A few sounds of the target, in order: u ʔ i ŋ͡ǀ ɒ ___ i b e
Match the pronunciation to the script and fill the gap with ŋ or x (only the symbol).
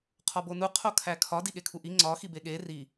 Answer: x